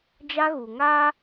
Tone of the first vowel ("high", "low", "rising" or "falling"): high